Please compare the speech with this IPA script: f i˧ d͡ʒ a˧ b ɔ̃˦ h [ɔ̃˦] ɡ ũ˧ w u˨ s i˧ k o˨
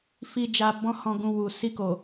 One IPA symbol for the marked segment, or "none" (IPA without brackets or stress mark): ɔ̃˧